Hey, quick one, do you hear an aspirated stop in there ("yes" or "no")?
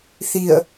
no